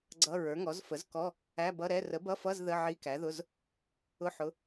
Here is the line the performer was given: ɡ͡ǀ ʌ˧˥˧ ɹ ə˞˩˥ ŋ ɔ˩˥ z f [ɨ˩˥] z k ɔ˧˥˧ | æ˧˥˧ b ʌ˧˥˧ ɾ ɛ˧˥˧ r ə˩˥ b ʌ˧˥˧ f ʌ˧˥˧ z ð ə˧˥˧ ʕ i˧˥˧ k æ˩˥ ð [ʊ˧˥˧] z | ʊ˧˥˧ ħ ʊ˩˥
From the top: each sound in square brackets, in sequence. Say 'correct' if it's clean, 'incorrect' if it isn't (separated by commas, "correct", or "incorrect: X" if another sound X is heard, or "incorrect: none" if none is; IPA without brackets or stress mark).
incorrect: ə˩˥, correct